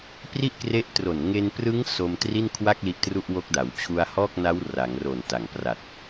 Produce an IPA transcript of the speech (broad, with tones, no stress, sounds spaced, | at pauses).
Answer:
p r i˥˩ ʔ k r e˦˥ ʔ t r o˨˩ n ŋ e˧ n p r ɯ˦˥ ŋ s o˧ m t r i˥˩ n kʰ w a˥˩ k̚ l i˦˥ ʔ t r u˥˩ ʔ w o˦˥ k̚ d a˩˦ w t͡ɕʰ u˧ a̯ h ɔː˥˩ k̚ n a˦˥ w r a˩˦ ŋ r o˨˩ n t a˨˩ ŋ p r a˨˩ t̚